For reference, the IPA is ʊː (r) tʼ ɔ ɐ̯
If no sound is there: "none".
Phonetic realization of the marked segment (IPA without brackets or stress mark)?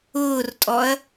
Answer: r